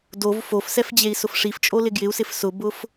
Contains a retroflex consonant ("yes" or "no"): yes